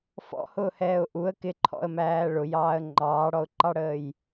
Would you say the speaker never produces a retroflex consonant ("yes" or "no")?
no